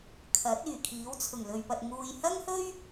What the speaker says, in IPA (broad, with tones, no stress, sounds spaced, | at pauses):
kʰ ɐ˨˥ t̚ yː˨˩ kʰ iː˨˥ w t͡sʰ ʊ˨˩ ŋ l ɵ˨ ɥ p ɐ˨ t̚ ŋ uː˨ j h ɐ˥ ŋ h ɵ˥ ɥ